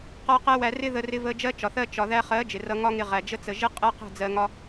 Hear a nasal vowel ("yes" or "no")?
no